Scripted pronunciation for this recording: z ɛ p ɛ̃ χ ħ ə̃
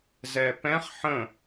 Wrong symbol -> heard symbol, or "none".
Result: none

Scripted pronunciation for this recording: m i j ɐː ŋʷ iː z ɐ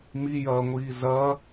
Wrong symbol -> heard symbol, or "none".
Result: none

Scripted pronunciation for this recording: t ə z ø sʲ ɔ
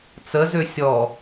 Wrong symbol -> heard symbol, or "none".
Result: t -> t͡s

